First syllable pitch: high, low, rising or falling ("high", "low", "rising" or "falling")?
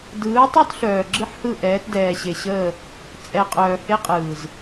rising